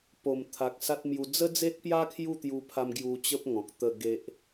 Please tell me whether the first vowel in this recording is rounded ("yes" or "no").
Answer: yes